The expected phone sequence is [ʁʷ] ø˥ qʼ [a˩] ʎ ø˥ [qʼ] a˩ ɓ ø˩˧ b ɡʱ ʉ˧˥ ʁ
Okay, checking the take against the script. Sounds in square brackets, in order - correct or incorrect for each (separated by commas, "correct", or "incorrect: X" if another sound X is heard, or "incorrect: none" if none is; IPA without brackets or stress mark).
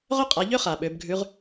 incorrect: ʁ, incorrect: a˩˧, incorrect: χ